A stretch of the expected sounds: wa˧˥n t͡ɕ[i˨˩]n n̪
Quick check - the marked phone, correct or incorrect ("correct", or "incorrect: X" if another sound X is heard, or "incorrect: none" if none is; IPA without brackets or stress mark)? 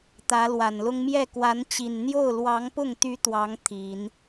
correct